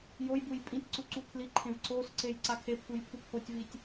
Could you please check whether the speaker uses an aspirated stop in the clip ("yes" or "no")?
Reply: yes